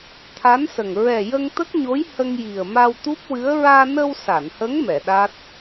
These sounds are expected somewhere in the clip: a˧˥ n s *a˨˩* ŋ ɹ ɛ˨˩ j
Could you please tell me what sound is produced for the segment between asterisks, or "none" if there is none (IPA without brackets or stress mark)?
ə˨˩